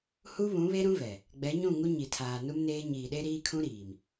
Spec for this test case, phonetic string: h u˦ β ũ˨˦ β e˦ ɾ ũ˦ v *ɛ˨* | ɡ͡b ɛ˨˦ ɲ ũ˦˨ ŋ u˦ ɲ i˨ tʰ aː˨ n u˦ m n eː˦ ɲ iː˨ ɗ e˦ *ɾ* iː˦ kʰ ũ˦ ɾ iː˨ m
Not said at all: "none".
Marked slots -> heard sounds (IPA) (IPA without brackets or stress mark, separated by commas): ɛ˨, ɾ